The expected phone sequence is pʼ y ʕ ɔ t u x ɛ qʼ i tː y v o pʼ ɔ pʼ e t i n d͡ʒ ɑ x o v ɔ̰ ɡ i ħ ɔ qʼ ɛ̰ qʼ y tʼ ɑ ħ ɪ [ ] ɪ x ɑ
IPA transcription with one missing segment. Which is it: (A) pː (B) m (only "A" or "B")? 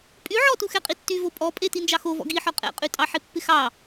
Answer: A